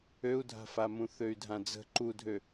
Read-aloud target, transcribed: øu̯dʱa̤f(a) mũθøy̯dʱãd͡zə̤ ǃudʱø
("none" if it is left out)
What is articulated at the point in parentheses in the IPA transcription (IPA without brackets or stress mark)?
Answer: a